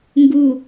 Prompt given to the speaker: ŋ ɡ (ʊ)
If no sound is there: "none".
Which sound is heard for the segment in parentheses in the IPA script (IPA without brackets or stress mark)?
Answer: u